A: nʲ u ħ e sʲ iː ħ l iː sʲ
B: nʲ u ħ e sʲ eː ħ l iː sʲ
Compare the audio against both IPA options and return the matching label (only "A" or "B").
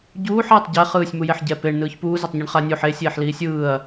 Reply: B